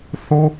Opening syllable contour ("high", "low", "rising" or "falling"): high